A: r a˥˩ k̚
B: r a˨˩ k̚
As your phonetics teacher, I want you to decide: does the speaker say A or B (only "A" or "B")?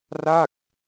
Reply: A